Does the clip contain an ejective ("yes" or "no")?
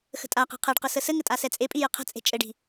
yes